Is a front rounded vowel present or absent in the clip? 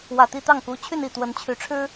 present